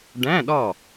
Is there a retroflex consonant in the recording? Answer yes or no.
yes